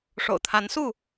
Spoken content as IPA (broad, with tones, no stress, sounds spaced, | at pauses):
ʂ o̰˨˩ ʊ̯ t̪ʰ a˨˦ n s u˥˨